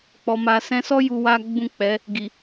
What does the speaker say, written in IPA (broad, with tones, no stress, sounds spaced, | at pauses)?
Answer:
k͡p ɔ˨ m a˨ s ɛ̃˧ s ɔ˦ j u˧ w a˦ ɡ͡b ũ˦˨ k͡p ɛ˨˦ | ɡ i˨